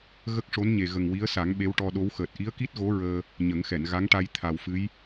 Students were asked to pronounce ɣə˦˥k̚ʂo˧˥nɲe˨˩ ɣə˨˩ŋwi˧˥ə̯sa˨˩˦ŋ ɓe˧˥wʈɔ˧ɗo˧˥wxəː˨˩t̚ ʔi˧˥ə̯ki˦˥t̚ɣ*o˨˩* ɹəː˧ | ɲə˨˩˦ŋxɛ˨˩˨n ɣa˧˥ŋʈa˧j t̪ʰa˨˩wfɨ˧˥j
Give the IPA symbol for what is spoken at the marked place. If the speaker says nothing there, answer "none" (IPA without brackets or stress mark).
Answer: o˧˥